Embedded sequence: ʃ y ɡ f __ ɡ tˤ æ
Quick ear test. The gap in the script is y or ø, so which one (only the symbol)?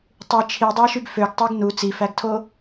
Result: ø